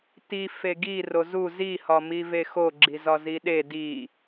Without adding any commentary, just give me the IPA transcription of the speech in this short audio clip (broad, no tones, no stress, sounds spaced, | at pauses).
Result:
t i f e ɡ i r o z u z i h ɒ m i v e x o ɡ͡ǁ i z ɒ z i ɗ e d i